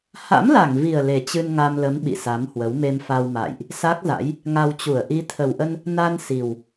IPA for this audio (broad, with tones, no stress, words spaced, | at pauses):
ha̰˧˥mla˧˩ŋvi˨˩ə̯ le˨˩t͡ɕɨ˧nŋa˧mlə˨˦m ɓḭ˧˨sa˨˦mhwə˨˦w me˧mfa˧wma̰ː˧˨jʔ | sa˦˥k̚za̰˧˥j | ŋa˧wt͡ɕu˧˩ə̯ ʔi˨˦t̪ʰə˨˩wʔə˧n | na˧n si˨˩w